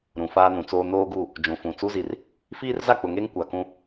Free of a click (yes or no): yes